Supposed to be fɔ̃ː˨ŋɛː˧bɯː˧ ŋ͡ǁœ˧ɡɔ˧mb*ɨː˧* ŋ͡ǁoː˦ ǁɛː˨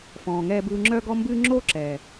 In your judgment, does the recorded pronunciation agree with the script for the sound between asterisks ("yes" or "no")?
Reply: yes